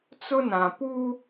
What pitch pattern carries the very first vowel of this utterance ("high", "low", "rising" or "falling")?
high